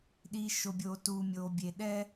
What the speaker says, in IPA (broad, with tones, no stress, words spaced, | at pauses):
ɗiː˧ʃo˧bʲoː˧ tuː˧mʲoː˧bʲe˧ ɗɛː˥